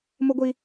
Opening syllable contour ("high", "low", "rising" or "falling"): high